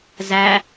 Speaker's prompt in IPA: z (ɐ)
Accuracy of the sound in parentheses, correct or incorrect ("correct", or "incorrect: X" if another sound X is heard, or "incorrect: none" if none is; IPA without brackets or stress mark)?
incorrect: æ